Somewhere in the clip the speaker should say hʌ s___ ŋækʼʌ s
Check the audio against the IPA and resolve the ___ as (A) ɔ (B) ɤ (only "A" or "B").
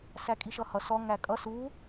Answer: A